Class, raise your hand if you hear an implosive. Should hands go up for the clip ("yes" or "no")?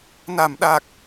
yes